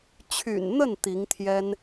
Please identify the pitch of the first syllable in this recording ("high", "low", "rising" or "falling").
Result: low